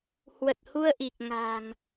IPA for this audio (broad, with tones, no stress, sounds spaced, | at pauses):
h w ə˨˩ t̚ h u˧ ə̯ ʔ i˨˩ k̚ ŋ a̤˨˩ ŋ